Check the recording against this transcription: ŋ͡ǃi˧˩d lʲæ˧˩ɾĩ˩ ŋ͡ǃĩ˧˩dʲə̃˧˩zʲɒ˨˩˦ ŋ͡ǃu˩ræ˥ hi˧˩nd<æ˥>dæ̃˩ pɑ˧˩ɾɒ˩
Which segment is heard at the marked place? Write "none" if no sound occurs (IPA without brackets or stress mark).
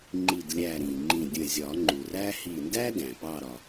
æ˥